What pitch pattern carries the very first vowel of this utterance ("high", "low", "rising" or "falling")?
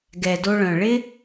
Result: low